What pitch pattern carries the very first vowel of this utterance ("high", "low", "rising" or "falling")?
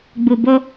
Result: low